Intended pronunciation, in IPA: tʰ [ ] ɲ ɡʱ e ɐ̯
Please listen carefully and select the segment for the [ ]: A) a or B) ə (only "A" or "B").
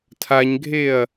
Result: A